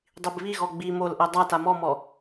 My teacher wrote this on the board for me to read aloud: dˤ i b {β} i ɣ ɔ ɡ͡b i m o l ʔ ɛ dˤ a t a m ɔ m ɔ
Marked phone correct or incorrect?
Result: correct